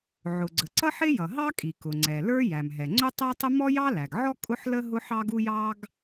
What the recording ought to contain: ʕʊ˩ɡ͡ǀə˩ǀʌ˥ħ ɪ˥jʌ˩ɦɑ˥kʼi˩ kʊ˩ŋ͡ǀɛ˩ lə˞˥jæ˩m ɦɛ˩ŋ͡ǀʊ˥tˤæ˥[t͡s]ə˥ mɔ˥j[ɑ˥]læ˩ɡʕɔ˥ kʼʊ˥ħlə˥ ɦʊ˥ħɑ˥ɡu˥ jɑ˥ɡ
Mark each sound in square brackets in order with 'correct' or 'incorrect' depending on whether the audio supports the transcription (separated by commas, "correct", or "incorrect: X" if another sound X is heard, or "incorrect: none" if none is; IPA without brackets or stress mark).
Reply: incorrect: tˤ, correct